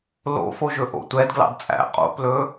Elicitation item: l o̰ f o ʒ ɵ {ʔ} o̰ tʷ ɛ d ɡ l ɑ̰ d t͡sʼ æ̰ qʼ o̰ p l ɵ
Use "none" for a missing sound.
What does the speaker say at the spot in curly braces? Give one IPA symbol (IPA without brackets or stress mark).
ʔ